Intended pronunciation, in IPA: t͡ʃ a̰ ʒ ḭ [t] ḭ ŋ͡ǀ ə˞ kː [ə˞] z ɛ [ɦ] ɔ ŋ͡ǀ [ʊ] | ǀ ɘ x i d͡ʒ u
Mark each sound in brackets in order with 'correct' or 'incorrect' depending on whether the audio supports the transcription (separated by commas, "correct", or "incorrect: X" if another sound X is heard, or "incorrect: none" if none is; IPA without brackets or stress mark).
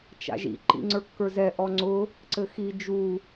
incorrect: ǃ, correct, incorrect: ʔ, correct